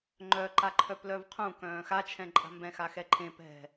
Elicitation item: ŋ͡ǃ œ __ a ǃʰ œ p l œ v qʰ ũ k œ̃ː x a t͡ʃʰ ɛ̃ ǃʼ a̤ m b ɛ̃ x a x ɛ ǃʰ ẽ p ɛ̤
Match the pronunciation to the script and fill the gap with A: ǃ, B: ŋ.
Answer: A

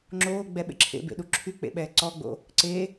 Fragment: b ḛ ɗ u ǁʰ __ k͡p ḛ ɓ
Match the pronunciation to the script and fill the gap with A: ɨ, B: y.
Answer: B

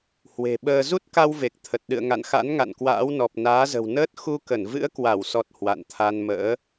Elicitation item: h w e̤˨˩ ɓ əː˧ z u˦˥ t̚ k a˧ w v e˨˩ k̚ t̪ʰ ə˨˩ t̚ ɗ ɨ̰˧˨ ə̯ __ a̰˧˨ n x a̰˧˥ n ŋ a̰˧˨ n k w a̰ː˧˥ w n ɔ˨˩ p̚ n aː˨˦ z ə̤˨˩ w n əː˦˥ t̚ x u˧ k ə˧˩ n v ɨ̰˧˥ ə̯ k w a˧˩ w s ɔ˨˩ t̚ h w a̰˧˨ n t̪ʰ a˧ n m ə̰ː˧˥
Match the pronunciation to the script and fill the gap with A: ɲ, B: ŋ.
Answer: B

